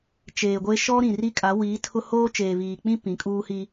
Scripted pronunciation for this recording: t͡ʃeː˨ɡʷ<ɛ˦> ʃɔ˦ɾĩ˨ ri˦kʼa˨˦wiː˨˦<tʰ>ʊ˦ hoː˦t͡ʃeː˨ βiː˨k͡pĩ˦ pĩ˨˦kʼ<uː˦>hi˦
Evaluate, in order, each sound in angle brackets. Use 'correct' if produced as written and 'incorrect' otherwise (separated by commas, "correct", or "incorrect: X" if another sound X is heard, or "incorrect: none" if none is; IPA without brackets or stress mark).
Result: incorrect: e˦, correct, correct